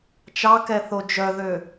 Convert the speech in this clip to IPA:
t͡ʃɑkɛθo d͡ʒœðø

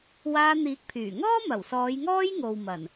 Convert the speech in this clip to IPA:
waː˧n̪iː˨˥k̚pʰyː˨˩ŋɔː˥ mɐ˨˩wsɔː˨˧jŋɔː˥jŋo˨w mɐ˨˩n

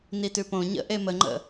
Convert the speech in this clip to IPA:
nitʉpõ ɲə̰ ʔeməŋ͡ǃə̰

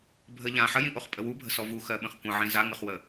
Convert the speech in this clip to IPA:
bʱə ʎã ħəjĩʔoχpʼə wubʱə̤sɔ vuxɜɓə̃χ kʷə̃ʕĩ zaŋəχwə

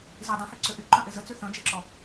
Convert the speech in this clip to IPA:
zi dˤœ̃hyǀʏ ʔyǃœ̃ʔe zət͡sy θœ̃d͡ʒeǁɔ

